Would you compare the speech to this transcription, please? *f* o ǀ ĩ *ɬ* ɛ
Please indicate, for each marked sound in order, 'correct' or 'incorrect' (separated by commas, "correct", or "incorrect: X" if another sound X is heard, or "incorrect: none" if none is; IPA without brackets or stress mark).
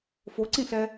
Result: correct, correct